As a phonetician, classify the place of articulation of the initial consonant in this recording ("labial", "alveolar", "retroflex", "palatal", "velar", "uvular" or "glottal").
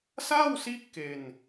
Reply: alveolar